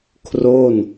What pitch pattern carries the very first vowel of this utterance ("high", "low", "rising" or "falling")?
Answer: falling